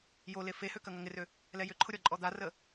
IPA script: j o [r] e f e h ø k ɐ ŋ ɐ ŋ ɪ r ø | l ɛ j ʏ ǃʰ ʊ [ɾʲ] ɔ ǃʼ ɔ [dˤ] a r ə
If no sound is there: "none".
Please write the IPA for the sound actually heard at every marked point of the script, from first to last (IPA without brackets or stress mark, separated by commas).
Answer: l, ɾʲ, d̪